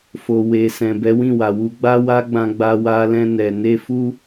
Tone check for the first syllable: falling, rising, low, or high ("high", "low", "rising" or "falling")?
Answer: low